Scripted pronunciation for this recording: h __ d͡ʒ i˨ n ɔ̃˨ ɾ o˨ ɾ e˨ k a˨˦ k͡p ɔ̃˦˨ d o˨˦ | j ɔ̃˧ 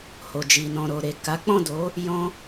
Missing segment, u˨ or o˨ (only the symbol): o˨